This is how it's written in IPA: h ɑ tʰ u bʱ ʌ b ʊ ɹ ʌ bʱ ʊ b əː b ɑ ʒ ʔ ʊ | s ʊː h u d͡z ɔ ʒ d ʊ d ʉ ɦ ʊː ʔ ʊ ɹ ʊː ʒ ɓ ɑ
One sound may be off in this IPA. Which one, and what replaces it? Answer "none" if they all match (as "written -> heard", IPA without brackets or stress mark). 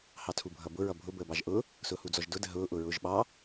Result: ʉ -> ə